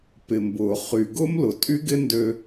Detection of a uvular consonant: present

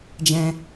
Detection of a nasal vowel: present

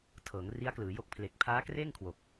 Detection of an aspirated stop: present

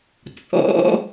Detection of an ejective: present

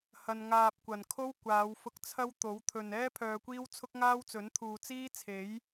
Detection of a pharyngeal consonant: absent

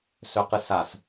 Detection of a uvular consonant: present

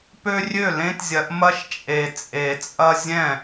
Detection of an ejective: present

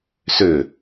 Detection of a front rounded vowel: present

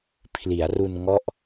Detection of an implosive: absent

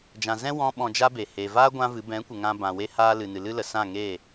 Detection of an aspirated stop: absent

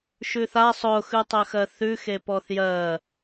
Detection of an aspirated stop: absent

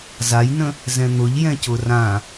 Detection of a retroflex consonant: absent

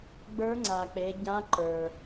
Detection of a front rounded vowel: absent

